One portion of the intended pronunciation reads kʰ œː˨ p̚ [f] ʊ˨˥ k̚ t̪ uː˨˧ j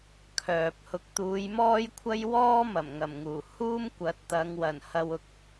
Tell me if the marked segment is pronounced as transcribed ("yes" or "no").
no